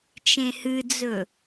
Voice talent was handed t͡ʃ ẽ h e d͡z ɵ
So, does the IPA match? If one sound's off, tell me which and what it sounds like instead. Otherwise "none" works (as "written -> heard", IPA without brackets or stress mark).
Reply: e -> ɨ